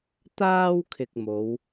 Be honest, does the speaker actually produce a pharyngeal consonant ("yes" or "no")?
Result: no